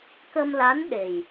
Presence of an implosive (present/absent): present